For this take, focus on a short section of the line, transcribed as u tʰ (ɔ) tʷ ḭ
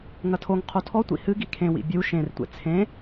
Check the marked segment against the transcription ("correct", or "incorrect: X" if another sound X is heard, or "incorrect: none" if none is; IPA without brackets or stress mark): correct